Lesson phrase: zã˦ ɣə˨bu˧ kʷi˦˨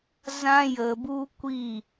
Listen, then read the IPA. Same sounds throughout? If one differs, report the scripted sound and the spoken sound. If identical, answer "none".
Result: ɣ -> j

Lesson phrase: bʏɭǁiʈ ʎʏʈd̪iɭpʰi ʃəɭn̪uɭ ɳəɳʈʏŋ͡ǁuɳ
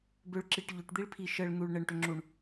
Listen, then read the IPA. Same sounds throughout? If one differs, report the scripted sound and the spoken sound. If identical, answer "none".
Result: none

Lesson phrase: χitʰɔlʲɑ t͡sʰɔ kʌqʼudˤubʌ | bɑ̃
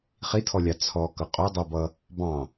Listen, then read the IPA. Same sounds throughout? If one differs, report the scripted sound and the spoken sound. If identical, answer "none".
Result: none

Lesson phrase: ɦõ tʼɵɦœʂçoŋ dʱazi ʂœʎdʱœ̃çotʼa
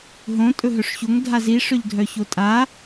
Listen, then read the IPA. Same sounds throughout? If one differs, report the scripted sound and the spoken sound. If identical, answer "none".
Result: œ̃ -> œ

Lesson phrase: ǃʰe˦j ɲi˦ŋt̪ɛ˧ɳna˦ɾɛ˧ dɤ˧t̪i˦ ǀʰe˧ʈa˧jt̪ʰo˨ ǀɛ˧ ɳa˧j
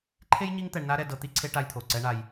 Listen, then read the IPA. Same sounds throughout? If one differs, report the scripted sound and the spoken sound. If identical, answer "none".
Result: none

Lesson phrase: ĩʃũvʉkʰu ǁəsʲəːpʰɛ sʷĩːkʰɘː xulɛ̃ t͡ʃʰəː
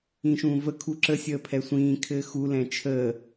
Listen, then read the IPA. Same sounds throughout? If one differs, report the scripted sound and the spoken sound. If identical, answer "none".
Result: ʉ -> ə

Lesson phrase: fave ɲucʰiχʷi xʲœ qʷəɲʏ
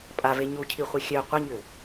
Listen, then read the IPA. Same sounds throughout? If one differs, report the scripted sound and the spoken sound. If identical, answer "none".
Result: f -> pʼ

